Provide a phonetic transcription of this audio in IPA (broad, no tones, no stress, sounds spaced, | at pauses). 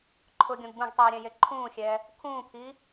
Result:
ǃʰ ʊ ɡʲ õ ɡ b ũ ɡ tˤ iː ɾʲ ɛ̃ j e ǃʰ ũː xʲ ɛː | kʰ ũː pʰ iː